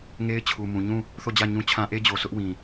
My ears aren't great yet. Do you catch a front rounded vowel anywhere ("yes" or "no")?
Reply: no